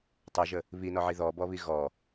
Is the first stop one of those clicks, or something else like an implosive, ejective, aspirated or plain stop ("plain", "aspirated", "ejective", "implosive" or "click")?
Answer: plain